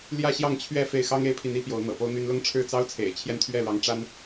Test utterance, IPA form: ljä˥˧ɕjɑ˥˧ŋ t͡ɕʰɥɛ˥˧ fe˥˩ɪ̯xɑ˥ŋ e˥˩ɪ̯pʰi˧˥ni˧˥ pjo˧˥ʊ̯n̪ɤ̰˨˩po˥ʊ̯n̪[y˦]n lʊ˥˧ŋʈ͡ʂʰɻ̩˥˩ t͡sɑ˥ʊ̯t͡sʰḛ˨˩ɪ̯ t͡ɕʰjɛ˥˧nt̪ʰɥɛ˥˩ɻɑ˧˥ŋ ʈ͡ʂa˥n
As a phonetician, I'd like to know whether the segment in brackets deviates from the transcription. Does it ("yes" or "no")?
yes